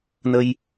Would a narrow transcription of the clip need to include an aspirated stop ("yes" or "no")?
no